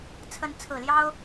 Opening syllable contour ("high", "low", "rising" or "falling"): rising